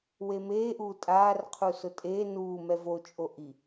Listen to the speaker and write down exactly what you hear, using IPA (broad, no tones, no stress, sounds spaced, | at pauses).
w e m eː ʔ uː tʼ aː r qʰ u s ʊ tʼ eː n uː m ɛ v o t͡ʃʼ o ʔ i